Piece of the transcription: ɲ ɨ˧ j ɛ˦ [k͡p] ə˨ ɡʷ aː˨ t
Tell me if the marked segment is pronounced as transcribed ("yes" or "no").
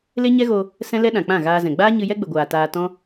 no